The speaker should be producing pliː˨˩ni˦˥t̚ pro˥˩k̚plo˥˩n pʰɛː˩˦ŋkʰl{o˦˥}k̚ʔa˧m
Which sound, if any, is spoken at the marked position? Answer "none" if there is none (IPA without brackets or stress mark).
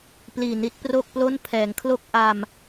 o˥˩